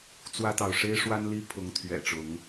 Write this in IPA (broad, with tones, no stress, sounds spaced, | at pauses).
t͡s w ä˦ t̪ ɑ˨ ʊ̯ ʂ e˦ ɪ̯ ʂ w a˦ n l i˦ pʰ ʊ˨˦ ŋ t̪ʰ ɥ ɛ̰˨˩ ʈ͡ʂ ʊ˨˦ ŋ